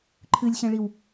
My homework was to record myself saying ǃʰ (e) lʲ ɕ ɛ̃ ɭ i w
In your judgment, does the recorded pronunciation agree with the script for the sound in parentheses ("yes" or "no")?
no